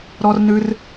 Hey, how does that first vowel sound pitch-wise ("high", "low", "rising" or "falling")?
high